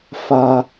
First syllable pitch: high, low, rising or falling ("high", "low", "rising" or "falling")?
high